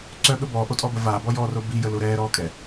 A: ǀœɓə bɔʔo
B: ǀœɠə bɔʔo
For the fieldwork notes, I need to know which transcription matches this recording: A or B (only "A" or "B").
B